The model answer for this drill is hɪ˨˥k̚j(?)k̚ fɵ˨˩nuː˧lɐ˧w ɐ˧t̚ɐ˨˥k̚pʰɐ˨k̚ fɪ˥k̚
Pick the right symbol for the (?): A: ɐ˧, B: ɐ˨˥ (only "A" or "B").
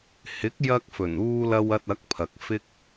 A